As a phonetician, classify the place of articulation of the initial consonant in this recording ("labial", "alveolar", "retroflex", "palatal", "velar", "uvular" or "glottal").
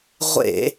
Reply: uvular